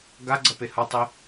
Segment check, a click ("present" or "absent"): present